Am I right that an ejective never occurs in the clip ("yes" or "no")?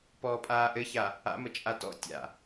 no